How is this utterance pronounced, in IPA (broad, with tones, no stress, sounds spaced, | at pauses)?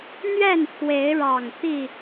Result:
n̪ ɥ ɛ˥˨ n pʰ w e˨˦ ɪ̯ ɻ ɑ˨˩ ŋ t̪ i˥˨